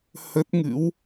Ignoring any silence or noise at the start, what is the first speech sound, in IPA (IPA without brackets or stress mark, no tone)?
h